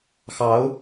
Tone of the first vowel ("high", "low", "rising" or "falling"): rising